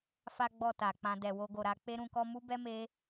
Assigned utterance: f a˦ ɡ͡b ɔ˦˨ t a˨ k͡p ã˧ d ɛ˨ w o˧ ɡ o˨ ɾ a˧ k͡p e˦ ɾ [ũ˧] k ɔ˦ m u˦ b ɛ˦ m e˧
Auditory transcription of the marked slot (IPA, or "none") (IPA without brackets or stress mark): ũ˧